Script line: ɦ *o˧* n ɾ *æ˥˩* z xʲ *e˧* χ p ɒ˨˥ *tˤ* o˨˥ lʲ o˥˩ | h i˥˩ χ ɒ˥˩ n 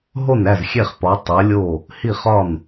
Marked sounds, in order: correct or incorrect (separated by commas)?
incorrect, correct, incorrect, correct